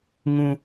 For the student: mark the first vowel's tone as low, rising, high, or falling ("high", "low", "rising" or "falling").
low